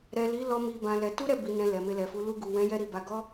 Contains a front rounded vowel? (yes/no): no